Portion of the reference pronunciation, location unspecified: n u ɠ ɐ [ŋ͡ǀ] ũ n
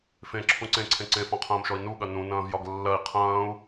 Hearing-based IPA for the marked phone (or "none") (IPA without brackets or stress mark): n